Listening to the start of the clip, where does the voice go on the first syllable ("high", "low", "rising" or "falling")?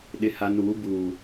low